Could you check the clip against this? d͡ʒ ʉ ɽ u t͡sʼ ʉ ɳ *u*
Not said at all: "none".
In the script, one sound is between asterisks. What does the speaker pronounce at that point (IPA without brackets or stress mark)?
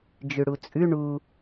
u